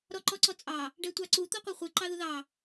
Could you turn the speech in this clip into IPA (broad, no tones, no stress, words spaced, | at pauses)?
ɾɔǃɔǀɔt͡sʼɑ | ɖɛtʷɑǀu t̪ɔqʷɛχʷɨ ǃɑðuðɑ